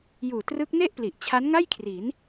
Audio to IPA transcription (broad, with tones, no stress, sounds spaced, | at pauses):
j uː˨˩ t r ɯ˦˥ k̚ n e˥˩ ʔ p l i˨˩ ʔ t͡ɕʰ a˦˥ n ŋ a˥˩ j kʰ r i˩˦ n